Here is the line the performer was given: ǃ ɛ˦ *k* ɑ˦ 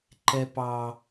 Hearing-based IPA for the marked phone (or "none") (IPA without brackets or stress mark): p